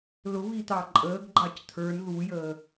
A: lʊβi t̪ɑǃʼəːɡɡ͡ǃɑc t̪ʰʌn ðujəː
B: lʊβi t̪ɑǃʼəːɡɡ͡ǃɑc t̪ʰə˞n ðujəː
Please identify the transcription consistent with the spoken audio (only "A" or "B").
B